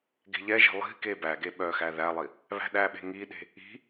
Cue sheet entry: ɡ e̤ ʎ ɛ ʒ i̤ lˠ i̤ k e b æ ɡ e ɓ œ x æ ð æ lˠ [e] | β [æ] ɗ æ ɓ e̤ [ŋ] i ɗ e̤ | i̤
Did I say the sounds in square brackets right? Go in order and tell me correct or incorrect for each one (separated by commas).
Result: incorrect, incorrect, correct